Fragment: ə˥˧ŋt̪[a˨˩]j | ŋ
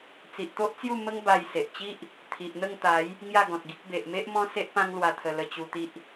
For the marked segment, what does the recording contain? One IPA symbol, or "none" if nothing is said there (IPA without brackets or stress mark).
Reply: a˨˦